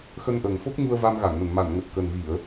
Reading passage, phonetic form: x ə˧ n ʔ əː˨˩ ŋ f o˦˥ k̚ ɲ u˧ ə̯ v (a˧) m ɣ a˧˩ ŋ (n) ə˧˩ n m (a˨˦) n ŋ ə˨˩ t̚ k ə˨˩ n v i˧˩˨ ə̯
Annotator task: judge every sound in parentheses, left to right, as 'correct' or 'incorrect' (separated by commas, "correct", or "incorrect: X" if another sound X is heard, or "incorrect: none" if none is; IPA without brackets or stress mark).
correct, correct, incorrect: a˧˩